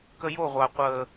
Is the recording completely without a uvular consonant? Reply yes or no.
no